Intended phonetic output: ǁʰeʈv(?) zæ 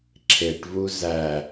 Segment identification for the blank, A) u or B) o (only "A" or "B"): A